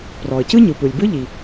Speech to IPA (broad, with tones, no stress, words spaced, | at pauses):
prɔ˩ə̯cɯ˥ɲɯ˩pɯ˩lʲ bɯ˥ʎi˩